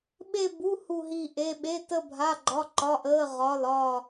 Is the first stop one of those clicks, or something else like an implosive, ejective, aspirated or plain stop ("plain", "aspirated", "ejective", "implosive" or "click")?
implosive